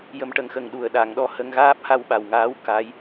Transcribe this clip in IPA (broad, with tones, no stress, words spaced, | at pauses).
jə˨˩˦mʈə˨˩˨ŋxə˨˩ŋɗu˨˩ə̯ ɗa˨˩˨ŋɗɔ˧ hə˧ŋ ɣaː˦˥p̚ha˧wɓa˨˩wŋaː˧˥w ka˧˥j